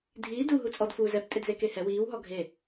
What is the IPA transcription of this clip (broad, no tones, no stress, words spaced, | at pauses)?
dʱiː du ɦut͡sʼɔd fuːzɛp tʼedzekehɛ wiːw ɦɔɡʱe